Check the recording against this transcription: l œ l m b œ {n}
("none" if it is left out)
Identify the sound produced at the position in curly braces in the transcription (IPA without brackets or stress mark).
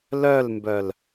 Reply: l